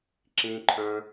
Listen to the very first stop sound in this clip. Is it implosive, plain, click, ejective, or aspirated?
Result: click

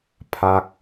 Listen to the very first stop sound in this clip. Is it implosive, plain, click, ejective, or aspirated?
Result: aspirated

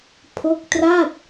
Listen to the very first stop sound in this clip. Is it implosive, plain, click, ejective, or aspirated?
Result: aspirated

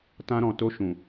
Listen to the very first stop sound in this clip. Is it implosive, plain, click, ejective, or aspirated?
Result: plain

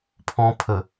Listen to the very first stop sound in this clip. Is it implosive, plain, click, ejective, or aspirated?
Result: aspirated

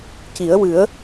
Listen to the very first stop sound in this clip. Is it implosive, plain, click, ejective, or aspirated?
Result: plain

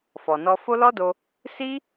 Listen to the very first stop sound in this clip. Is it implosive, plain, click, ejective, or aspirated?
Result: plain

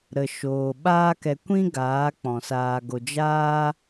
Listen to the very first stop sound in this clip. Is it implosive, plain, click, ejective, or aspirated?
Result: implosive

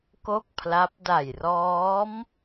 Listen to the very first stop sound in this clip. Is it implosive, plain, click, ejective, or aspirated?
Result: plain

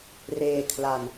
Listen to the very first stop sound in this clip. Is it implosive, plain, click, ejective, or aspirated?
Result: aspirated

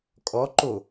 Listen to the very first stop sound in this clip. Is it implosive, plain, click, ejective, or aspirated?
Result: ejective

